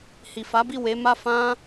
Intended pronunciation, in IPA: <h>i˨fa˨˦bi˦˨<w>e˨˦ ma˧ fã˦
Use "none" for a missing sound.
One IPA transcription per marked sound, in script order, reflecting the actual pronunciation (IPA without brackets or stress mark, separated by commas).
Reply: h, w